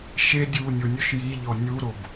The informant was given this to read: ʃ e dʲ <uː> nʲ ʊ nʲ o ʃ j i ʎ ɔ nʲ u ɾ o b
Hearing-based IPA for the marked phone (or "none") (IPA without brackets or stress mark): uː